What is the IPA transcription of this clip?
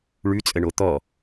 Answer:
ɭʉt͡sʼəɳo t̪ɔ

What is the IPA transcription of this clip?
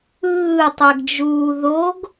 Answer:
ɯːtˤɛɡd͡ʒuː ðoɡ

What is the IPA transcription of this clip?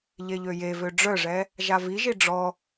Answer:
ʎeʎøjevø ɖ͡ʐœʐɛ | ʒaviʒi ɖ͡ʐɔ

